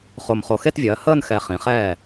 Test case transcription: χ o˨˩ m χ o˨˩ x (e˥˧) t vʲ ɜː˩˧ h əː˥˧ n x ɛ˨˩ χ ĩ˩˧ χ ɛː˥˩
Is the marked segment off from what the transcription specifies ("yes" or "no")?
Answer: no